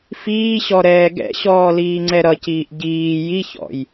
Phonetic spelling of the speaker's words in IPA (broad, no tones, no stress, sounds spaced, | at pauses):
f iː ɕ ɔ ɾ ɛː ɡ ɛ̰ ɕ ɔː l iː ŋ͡ǀ ɛ ɾ ʌ c iː ʔ ɟ iː j i ç ɔ̰ j